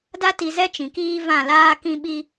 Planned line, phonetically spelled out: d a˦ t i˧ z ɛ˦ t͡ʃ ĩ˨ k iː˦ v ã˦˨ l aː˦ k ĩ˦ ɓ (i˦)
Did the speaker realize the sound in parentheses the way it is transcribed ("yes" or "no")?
yes